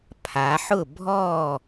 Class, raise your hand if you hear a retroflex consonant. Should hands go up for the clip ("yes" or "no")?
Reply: no